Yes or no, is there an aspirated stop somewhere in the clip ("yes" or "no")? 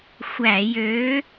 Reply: no